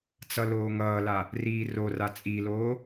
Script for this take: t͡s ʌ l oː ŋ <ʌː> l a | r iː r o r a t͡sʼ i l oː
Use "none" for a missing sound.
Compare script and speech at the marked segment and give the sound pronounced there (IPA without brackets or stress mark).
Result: ʌː